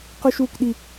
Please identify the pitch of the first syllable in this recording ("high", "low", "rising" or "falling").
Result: high